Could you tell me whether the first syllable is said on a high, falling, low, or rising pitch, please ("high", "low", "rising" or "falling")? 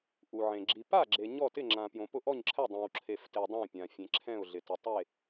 low